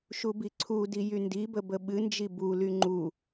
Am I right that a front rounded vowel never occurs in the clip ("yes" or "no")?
no